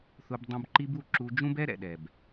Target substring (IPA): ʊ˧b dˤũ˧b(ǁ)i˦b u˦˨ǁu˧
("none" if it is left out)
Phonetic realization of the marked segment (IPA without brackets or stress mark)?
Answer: ǃ